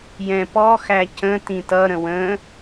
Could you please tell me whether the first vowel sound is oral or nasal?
nasal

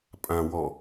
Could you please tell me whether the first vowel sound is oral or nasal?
nasal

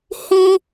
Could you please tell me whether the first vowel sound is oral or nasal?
nasal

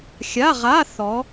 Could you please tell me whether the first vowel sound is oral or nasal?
oral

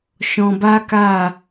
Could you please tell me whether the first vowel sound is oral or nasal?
nasal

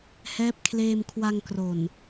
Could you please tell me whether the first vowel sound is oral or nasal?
oral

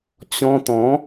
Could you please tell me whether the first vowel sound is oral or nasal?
nasal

